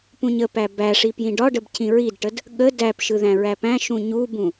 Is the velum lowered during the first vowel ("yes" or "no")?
yes